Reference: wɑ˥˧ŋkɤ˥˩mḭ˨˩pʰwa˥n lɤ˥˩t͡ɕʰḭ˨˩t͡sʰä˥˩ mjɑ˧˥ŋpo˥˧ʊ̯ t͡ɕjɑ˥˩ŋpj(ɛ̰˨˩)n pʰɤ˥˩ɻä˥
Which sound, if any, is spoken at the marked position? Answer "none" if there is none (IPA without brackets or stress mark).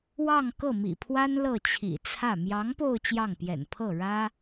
ɛ̰˨˩